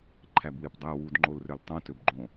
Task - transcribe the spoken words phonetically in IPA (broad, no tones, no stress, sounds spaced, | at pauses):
ǃʰ æ b w e p dˤ æ w u d ŋ͡ǃ o l r ø l tˤ õ t ø b ɡ͡ǃ õ